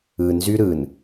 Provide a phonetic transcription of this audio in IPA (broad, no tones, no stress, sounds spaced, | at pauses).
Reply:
ɯ n z y ɾ ɯ n